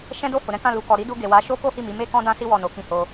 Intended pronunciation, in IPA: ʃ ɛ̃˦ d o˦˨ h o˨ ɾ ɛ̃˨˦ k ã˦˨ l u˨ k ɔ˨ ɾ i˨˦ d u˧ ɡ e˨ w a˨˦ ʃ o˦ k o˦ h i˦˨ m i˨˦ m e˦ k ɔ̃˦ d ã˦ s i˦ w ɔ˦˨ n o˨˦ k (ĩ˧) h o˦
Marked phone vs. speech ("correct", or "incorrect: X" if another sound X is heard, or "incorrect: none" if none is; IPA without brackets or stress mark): incorrect: ĩ˦